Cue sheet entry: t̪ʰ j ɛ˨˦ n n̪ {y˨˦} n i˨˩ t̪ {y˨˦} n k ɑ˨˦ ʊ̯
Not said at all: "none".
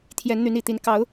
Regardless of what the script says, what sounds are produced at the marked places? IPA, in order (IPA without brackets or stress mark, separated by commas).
y˨˦, i˨˦